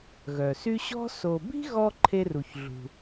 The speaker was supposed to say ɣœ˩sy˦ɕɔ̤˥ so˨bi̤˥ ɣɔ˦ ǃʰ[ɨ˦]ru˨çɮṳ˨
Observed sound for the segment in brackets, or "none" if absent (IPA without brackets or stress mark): e˦